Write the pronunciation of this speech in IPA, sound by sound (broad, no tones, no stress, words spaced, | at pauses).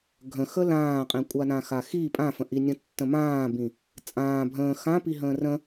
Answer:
ɡʱə̃ xəlãːqʼĩ kʷʼanãxaxi pʼãfə̃ʔinʲə̃ tːə̃mãːbĩ | t͡sʼãː bʱə̃ː xãpiɦə̃ː rə̃